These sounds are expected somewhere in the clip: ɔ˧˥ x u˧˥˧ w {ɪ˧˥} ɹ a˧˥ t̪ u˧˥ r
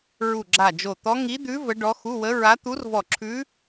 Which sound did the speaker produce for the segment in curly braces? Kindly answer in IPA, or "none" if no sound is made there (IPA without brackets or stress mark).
ə˧˥